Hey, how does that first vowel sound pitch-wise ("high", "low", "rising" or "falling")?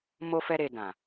high